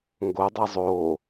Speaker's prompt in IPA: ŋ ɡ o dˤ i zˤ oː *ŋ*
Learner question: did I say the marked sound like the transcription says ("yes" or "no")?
no